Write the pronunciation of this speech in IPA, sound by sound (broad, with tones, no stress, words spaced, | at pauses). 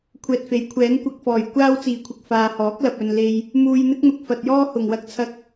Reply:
kʷʰɛː˨t̚fe˨˥jkʷʰɛː˨˥n kʷɐ˧k̚fɔː˨˩j kʷaː˥wt͡siː˨˩kʷʰɪ˨k̚ faː˨hɔː˨˥k̚lɐ˨p̚ɵ˨n le˨j | muː˧jn̪ɪ˥k̚n̪ʊ˨k̚ fɐ˨t̚jɔː˥ hʊ˨˩ŋwɐ˧k̚t͡sʰɐ˧k̚